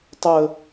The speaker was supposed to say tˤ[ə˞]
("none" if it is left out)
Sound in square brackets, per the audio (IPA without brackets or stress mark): ə